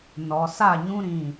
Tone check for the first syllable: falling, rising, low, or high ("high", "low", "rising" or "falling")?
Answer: low